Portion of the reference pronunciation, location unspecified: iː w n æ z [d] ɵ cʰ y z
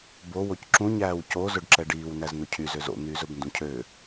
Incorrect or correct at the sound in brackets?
incorrect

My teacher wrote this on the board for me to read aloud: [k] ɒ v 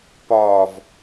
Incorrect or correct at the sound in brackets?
incorrect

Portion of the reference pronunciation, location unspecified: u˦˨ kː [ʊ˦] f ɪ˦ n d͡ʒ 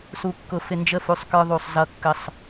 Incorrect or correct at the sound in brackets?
correct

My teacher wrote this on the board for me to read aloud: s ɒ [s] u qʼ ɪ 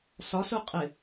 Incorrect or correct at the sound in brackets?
correct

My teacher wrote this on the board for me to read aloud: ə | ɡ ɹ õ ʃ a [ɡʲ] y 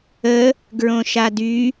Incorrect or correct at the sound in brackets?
incorrect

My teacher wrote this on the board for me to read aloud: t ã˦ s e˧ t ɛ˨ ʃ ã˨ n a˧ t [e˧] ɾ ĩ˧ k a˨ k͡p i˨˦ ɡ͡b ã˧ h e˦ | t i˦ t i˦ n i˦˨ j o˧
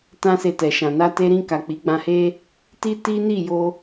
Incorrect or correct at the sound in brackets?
correct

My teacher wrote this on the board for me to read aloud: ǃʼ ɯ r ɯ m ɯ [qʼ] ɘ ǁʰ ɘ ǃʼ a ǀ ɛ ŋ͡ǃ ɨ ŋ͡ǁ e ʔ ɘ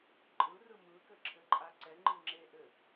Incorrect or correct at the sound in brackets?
incorrect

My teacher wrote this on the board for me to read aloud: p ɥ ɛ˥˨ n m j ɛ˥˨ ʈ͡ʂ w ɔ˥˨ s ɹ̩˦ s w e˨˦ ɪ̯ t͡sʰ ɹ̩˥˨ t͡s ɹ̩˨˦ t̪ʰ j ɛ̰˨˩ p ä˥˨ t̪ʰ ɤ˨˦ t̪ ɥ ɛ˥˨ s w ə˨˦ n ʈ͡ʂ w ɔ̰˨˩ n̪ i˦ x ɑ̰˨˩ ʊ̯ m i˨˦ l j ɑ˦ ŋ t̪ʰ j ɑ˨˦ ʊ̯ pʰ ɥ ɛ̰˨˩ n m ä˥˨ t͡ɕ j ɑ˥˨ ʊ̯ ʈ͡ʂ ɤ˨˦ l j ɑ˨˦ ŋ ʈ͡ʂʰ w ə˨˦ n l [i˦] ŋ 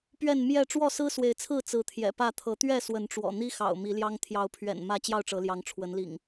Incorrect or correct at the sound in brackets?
incorrect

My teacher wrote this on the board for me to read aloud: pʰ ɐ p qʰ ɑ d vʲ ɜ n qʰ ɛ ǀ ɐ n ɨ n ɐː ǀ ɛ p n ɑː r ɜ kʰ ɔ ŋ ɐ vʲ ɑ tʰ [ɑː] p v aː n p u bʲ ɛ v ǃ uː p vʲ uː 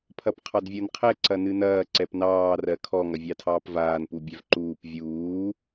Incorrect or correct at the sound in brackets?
correct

